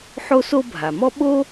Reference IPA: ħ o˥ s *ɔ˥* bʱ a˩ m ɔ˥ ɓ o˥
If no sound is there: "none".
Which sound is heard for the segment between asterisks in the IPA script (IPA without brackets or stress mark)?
o˥